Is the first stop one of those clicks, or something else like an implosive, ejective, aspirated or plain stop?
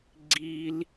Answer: click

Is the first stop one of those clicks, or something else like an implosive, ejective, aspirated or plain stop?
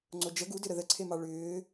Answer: click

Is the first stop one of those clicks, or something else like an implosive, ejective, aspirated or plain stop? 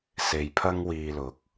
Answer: aspirated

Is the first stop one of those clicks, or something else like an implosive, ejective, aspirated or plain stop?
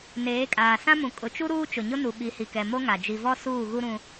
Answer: ejective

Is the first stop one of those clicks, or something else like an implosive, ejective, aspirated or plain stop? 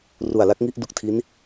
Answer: plain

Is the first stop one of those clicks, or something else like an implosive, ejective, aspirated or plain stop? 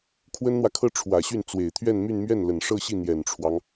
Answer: aspirated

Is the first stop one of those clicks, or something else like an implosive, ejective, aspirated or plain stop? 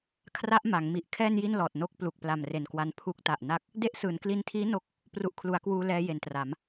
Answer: aspirated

